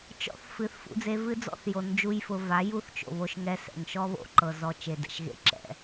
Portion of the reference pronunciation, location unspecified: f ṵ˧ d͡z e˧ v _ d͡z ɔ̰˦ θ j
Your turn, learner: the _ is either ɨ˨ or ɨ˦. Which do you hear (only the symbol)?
ɨ˦